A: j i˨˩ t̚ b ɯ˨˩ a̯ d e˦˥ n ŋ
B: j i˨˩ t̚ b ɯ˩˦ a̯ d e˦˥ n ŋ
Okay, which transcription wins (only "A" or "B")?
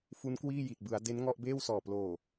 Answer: B